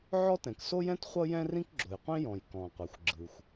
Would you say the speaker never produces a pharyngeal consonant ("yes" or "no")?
no